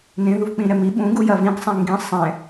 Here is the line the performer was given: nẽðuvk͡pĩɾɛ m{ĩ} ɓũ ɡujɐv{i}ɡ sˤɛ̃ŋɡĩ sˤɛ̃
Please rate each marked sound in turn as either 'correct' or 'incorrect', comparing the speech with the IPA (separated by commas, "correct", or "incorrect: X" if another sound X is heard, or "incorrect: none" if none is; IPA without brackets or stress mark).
incorrect: i, incorrect: ĩ